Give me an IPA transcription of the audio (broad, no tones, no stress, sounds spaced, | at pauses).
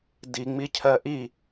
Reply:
d i ŋ͡m i cʰ ɜ ʔ i